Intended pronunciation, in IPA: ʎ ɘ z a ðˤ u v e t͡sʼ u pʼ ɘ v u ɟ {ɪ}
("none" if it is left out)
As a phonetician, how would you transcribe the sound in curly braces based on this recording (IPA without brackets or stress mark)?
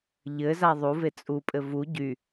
y